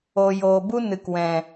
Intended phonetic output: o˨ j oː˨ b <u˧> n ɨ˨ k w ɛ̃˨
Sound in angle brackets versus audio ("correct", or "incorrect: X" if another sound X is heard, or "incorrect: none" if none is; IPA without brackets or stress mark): incorrect: u˦